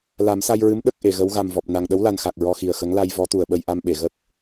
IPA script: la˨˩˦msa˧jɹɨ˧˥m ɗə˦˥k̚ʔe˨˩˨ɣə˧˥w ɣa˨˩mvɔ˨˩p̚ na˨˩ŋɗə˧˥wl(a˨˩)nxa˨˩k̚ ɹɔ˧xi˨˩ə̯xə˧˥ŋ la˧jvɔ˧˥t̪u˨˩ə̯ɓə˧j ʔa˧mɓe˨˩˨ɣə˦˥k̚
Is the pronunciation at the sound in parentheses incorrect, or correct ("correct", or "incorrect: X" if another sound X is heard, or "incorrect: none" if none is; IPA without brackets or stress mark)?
correct